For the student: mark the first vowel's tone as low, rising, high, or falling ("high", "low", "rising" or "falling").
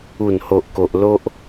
low